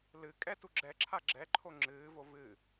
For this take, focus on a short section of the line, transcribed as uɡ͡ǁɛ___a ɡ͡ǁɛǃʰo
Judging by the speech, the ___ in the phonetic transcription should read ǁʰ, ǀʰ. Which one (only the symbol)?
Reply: ǁʰ